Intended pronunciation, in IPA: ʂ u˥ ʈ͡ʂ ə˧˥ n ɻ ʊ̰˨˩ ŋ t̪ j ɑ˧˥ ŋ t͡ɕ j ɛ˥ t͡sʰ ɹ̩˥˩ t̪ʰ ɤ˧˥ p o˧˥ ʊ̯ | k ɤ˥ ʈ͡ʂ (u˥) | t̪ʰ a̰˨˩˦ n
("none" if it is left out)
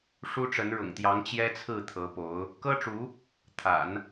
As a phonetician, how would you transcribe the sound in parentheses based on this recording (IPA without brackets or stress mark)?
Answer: u˧˥